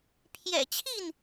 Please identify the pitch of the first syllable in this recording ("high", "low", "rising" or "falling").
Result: low